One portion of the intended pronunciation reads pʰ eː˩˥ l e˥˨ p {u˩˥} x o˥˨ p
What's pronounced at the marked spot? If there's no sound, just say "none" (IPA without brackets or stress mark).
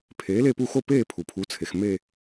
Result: u˥˨